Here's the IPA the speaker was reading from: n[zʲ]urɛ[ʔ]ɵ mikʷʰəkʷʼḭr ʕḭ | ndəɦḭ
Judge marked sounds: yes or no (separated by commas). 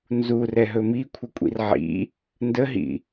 no, no